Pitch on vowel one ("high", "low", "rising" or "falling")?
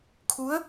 rising